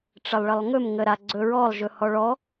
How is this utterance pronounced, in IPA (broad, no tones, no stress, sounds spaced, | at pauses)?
ʈ͡ʂ ə lˠ ɭ ə lˠ ŋ ɵ m ŋ ə ɾ a ɡ͡ǀ ɵ ɹ ɔ lˠ ʒ ɵ h ɔ ɭ ɔ